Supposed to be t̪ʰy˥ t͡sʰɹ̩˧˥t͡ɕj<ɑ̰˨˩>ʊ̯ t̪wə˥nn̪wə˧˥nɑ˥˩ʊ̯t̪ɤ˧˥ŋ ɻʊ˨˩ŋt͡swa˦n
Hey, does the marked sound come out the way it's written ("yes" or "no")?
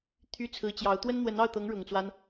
no